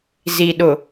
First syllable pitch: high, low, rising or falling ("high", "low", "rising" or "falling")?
low